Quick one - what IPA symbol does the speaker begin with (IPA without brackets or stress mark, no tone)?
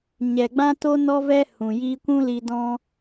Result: ɲ